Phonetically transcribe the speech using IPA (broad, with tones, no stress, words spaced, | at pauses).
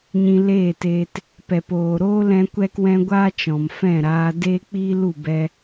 ɲĩ˧leː˦˨teː˧t | pɛ˨poː˨ɾoː˦ lɛ̃˦kʷɛ˦kwɛ̃˦ ɡʷaː˦t͡ʃɔ̃˨mfɛ̃˦˨ɾaː˧ deː˦k͡piː˦lu˦˨ bɛ˧